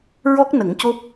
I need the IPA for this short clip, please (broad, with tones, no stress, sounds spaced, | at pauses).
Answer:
ɹ ɔ˦˥ k̚ n ə˨˩˦ ŋ c o˦˥ p̚